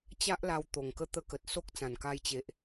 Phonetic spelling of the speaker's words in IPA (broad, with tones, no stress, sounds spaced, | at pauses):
t͡ɕ a˦ ʔ l a˧ w t̪ o˨˩ ŋ k ə˥˧ t̪ ə˦ k ə˨ t̚ s o˦ k̚ t͡s ã˨˩ n k a˧ j t͡ɕ e˨ ʔ